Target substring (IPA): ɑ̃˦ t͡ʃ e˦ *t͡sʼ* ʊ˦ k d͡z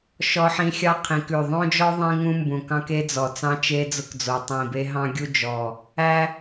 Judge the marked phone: incorrect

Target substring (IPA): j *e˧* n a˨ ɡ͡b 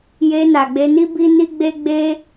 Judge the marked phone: correct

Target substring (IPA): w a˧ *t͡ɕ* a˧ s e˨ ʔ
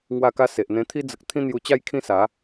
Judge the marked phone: incorrect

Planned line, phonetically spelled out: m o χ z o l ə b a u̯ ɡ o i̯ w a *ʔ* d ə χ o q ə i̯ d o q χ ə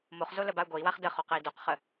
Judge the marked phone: incorrect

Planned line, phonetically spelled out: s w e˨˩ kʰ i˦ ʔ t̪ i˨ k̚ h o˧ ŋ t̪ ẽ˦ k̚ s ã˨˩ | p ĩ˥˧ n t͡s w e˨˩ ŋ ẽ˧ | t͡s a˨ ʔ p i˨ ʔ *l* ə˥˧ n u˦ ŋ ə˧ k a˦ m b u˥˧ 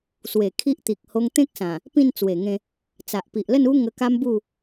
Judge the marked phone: correct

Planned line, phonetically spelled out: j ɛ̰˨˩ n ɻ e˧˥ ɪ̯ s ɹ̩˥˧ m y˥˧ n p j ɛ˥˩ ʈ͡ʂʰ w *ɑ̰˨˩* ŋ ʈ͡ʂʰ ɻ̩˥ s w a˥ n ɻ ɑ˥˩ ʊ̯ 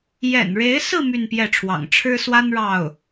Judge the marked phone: correct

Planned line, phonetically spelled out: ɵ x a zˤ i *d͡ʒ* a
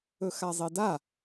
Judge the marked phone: incorrect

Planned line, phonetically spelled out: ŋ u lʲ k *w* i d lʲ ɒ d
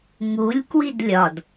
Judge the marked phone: correct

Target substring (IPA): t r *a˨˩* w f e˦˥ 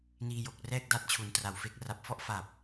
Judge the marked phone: correct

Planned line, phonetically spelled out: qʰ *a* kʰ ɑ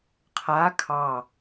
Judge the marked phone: correct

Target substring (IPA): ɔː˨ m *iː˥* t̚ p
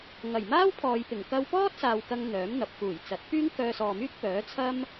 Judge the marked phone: incorrect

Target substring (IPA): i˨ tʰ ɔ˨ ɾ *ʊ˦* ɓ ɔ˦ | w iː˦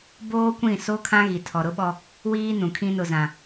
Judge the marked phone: correct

